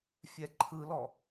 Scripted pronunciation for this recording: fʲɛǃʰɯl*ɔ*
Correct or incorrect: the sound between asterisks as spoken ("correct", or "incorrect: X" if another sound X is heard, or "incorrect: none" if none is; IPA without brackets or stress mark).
correct